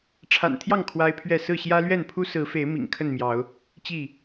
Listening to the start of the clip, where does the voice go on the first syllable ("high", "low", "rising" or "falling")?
low